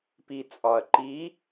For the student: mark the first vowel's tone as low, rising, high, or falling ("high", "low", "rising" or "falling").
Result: low